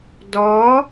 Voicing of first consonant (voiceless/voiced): voiced